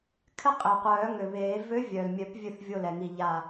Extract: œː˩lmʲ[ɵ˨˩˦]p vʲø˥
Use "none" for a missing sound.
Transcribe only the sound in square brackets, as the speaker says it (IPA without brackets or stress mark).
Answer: œ˨˩˦